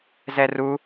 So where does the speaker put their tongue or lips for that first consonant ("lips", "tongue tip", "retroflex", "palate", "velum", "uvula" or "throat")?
tongue tip